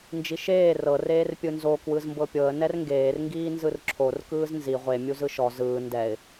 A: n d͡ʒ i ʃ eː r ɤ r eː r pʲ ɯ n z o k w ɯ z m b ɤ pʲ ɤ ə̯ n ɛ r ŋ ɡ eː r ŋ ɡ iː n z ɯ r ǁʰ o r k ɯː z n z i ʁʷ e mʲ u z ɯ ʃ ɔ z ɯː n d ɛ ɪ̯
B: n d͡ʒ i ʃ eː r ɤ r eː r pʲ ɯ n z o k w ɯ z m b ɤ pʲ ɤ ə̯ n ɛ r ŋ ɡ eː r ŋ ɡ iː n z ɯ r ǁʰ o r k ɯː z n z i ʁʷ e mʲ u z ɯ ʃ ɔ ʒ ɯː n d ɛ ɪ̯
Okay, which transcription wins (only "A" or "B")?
A